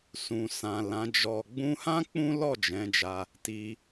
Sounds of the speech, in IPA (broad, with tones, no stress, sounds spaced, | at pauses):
s ũ˨ s ã˨ l ã˨˦ d͡ʒ ɔ˧ ɡ͡b ũ˧ h ã˦ k͡p ũ˦ l ɔ˦˨ d͡ʒ ɛ̃˨˦ d͡ʒ a˧ | t i˧